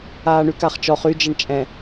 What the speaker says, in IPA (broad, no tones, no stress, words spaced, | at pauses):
aːɳykaχt͡ʃɔχ yd͡ʒəɳ t͡ʃʼɛ̃